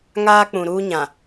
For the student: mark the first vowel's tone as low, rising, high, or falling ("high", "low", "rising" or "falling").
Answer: high